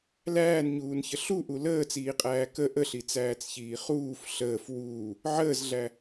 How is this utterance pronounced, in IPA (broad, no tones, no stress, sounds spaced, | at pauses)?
l æː n ɲ uː n ç ə ɬ u ʔ u l əː t͡s iː qʼ æː k ə ʔ ə ɬ i t͡s æː t͡s ç iː χ uː f ɬ əː f w uː | ʕ əː z ɮ æ